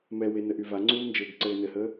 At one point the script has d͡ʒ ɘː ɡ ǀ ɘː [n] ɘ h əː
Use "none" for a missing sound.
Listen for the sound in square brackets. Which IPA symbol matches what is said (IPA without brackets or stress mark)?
n